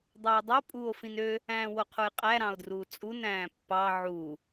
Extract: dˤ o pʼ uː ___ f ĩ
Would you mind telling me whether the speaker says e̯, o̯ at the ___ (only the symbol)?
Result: o̯